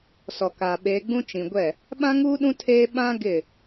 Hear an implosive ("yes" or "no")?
yes